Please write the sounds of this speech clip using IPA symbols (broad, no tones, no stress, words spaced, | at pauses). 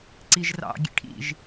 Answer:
ǀiʒrɑ̰ ɡʲḛʈʰḭʒ